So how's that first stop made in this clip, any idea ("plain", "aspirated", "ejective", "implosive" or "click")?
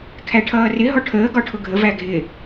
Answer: aspirated